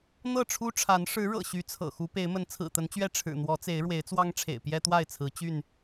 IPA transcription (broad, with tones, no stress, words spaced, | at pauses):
n̪ɤ˥˨ʈ͡ʂʰu˦ʈ͡ʂʰa˨˦n ʂɻ̩˨˦ ɻɤ̰˨˩ɕy˨˦ t͡sʰɤ̰˨˩ xu˨˦pe˨˦ɪ̯mə˨˦n t͡sʰɹ̩˨˩t̪ə˨˦nt͡ɕɥɛ˥˨ ʈ͡ʂʰɻ̩˨˩n̪wɔ˨˦t͡se˨˦ɪ̯ ɻwe˨˦ɪ̯t͡swɑ˦ŋʈ͡ʂʰḛ˨˩ɪ̯ pjɛ˦t̪wa˥˨ɪ̯t͡sʰɹ̩˨˦ t͡ɕy˥˨n